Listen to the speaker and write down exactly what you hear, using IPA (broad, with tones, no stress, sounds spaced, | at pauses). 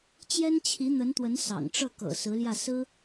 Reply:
t͡ɕ j ɛ˥ n t͡ɕʰ i˧˥ n̪ ə˧˥ n t̪ w ə˧˥ n s ɑ̰˨˩ ŋ ʈ͡ʂ ɤ˥˩ k ɤ̰˨˩ s ɹ̩˧˥ l j ä˥˩ s ɹ̩˥